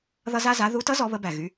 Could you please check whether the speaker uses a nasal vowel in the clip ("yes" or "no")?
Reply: no